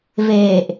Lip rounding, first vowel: unrounded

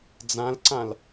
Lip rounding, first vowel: unrounded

